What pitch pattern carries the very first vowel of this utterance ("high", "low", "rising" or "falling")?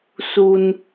high